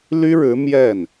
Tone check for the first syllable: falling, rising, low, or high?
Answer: high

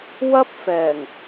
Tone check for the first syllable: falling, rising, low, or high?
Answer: high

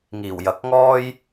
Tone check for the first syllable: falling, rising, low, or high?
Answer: low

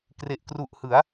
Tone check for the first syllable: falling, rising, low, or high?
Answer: low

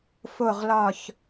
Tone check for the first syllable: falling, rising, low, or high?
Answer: falling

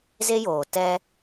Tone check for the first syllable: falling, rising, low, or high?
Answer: high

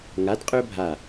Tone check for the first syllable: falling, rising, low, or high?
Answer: rising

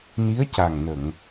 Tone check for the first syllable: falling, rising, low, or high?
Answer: rising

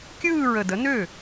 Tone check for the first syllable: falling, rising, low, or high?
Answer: falling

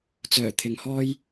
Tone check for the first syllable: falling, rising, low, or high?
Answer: low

